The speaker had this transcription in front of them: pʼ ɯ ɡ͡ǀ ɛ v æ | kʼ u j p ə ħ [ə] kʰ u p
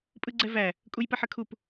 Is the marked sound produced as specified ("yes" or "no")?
yes